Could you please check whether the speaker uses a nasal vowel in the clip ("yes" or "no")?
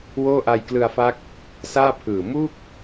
no